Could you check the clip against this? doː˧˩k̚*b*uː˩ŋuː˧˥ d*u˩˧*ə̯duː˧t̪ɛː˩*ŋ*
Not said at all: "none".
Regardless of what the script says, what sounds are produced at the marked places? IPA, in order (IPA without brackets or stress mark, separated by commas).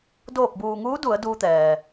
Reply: b, u˩˧, none